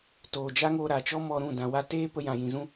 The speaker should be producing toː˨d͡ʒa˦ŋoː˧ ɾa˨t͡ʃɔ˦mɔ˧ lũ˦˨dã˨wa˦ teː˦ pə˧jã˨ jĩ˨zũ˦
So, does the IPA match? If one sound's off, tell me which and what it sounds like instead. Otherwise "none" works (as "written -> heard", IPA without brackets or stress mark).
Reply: l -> ɾ